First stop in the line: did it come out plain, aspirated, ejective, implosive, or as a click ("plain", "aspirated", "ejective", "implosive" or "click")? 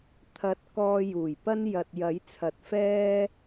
aspirated